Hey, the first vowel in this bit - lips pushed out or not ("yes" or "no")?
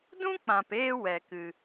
yes